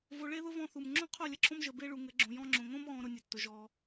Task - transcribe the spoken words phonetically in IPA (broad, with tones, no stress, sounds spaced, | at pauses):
v o˧ ɭ e˦ ð ʊ˦ v ɔ̃˦˨ θ u˨ m ŋ͡ǁ õ˦ qʰ o˦˨ lʲ ə˦ ǁʰ õ˦ m ʒ ə˧ b e˦ ɭ u˧ ŋ ɘ˨˦ ɡ͡ǁ õ˧ j ɔ̃˦ ŋ͡ǁ õ˧ ŋ õ˦ m ɣ ɔ̃˧ ɾ ʊ˧ nʲ ɘ˧ tː ʊ˧ ʒ ɔ˧